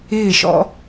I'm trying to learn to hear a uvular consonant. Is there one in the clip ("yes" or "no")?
no